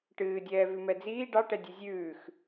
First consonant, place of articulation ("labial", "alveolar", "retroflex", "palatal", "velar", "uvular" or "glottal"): retroflex